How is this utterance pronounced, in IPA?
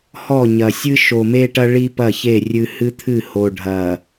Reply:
h ɔ˦˨ ɲ ɐ˨ sʲ ɨ˦ ʃ o˨ m e˦ ʈ ɐ˦ ɭ i˦ p ɐ˦˨ ç e˦˨ rʲ ɨ˦ h ɨ˦ t̪ʰ ɨ˦˨ h o˨ ɖʱ ɐ˨

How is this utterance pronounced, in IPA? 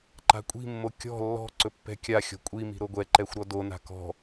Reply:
ǃ a̤ kʷʼ i̤ mː o kʲ ɔ̤ lː ɔ̤ ǀ ɵ pː ɛ̤ kʲ a xʲ ɔ̤ kʷʼ i m i̤ ɾ o ɡʷ ɛ ǃ ɛ xʷ ɾ ɔ d o n a̤ k ɔ̤

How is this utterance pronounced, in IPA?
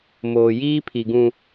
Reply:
m oː˨ j iː˦ pʰ i˨ ɡ ũ˨

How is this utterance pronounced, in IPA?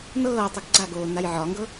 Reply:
n ɤː tˤ ɨ ɡ ɡ͡ǀ a ɡ oː n a j ʕ ɒ ŋ ɡ ɤ

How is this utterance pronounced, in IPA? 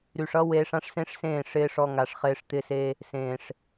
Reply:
ɾ y˨ ʂ ʌ˦ w eː˧ ʂ ã˦ ʂ s ẽ˦ ʂ s ẽː˦˨ ʂ ɪː˧ ʂ ɔ˧ ŋ a˨ ʂ χ ɪː˧ ʂ t̪ ɪ˦ s e˦ | s ẽː˨ ʂ

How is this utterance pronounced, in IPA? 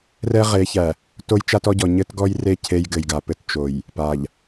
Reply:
r ɛ˦ ʁ e˨˦ ç æ˨ | t o˦ j t͡ʃ a˦ t ɔ˦ ɟ ɔ˨ ɲ ɘ˦ t ɡ ɔ˦ j r e˦˨ cʰ e˦ j ɡ ɘ˨ j ɡ a˨ p ɘ˦ t t͡ʃ o˨ j | p a˨ ʎ

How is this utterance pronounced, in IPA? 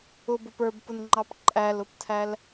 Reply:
ʊ b ʊ p ə˞ b p ʊ n ŋ͡ǃ ɑ p ǃʼ æ l ʊ p tʰ æ l

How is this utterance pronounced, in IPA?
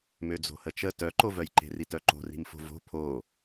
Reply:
m ø d͡z o̤ h ə t͡ʃ ə t œ ǃ o v œ j ǃ e̤ r i t œ ǃ o̤ r i̤ m f o̤ v o̤ pʰ o

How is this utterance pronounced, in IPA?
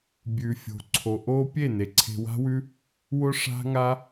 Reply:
bʲ ʉ˨ fʲ o̤˨ ǀʰ o˨ ʔ o˦ pʲ e˦˨ n e˨ ǀʰ e̤˧ w a̤˦ w ʉ˦ | w ʊ˦ ʂ a̤˦ ŋ a˦

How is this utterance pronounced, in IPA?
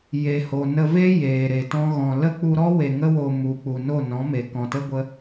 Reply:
j e˨ h o˨ n ə˧ v e˦ j eː˨ ɾ e˨ t ɔ̃˦ ɣ ɔ̃˧ l ə˦ k͡p u˧ ɾ ɔ˦ w e˨ ŋ ə˧ w o˨ m u˨ k͡p u˨ n o˦˨ n ɔ̃˨˦ m e˨ k ɔ̃˨ t ə˦ ɡʷ ə˧

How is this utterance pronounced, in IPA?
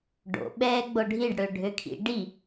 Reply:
ɖ o̰ ɓ ɛː ɡ͡b o ɖʱ i ɖ ɽ ø ɖʱ ø kʰ ḭ ɖ i

